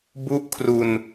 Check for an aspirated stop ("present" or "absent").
present